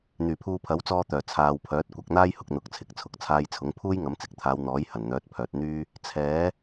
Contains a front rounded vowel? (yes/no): yes